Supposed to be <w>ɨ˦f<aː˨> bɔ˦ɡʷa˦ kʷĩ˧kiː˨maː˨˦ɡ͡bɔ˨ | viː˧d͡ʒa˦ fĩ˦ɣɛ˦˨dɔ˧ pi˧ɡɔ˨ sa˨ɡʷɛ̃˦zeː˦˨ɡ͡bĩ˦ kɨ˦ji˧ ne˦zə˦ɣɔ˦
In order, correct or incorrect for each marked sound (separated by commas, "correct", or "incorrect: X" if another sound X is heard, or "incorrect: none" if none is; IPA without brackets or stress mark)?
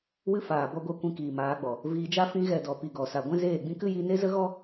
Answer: correct, correct